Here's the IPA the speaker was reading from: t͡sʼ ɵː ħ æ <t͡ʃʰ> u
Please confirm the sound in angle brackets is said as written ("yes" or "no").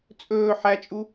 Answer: no